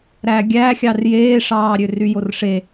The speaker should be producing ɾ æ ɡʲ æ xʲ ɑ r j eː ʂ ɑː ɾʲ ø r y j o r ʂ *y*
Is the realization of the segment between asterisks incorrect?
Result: yes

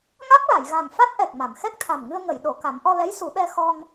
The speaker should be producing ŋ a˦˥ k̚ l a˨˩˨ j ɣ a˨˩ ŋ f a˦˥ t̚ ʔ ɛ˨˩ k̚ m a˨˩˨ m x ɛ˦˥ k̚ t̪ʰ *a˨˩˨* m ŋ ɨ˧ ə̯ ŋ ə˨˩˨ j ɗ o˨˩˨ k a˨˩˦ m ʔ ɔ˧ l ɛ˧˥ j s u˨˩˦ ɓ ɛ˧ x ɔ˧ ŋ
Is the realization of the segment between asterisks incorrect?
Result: yes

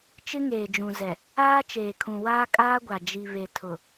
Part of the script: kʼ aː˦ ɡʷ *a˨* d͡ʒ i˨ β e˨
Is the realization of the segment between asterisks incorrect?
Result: no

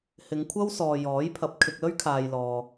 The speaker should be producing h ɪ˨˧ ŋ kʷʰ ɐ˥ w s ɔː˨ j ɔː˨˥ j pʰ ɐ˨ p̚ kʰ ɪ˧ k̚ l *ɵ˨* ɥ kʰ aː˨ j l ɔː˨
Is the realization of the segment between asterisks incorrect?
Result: yes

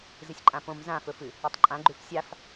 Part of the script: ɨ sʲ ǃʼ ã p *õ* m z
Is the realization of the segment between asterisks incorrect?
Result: no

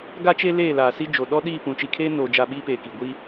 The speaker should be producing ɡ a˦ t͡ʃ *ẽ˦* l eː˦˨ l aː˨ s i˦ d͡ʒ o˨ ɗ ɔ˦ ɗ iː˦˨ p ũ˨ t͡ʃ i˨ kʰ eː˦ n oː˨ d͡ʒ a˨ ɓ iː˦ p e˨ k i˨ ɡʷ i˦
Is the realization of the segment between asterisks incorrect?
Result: yes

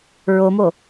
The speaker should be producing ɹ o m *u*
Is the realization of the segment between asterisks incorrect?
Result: yes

